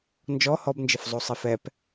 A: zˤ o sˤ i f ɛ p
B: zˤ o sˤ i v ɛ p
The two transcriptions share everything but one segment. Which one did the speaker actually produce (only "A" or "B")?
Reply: A